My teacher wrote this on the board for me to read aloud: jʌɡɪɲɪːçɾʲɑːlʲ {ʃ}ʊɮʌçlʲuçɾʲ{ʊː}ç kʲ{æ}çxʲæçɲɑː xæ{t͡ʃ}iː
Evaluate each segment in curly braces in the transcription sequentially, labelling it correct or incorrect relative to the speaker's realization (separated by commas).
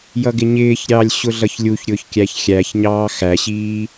incorrect, correct, correct, incorrect